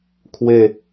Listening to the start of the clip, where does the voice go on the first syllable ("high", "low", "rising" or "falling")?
falling